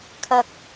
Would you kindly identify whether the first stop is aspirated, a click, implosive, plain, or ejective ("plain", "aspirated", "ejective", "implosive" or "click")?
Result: aspirated